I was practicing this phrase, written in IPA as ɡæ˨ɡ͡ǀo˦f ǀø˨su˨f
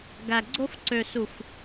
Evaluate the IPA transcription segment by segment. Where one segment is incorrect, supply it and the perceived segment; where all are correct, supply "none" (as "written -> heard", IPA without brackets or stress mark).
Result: none